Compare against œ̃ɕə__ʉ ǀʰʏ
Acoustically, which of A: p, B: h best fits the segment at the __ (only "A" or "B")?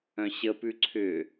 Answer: A